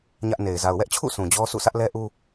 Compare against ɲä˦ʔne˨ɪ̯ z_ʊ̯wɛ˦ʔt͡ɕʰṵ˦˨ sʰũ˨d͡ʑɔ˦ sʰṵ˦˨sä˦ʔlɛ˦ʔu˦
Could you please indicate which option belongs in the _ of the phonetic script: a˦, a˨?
a˨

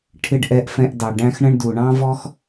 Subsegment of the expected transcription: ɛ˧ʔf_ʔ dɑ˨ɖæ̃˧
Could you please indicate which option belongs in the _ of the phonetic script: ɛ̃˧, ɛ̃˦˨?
ɛ̃˧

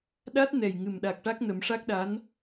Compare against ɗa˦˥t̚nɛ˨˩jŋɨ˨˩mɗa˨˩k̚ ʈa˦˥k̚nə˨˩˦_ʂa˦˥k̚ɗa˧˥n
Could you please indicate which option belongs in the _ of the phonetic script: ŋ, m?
m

